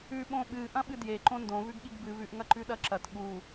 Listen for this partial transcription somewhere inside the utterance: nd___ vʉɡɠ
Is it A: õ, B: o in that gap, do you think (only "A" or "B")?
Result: A